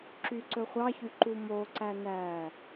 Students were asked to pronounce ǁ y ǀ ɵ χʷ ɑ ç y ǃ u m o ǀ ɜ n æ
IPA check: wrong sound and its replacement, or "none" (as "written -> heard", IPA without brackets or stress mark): ɜ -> æ